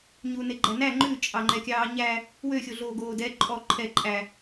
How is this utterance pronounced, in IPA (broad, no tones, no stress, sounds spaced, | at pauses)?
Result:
ɲ uː n e ɡ͡ǃ æ n æ ŋ͡ǃ ʉ t͡ʃʼ ɑ ŋ͡ǃ ɛ kʲ ɑː ɲ æ | w ø xʲ o ɮ oː ɡ oː d ɛ ǃʼ ɔ ǃʰ ɛ ǃʼ æ